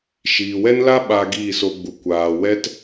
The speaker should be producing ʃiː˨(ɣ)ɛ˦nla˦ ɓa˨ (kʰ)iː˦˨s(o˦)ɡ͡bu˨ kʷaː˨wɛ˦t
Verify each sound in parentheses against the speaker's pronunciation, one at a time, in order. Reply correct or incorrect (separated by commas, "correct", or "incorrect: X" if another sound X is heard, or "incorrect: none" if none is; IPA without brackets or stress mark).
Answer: incorrect: w, incorrect: ɡ, incorrect: o˧